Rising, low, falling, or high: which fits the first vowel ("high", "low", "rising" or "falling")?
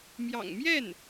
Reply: low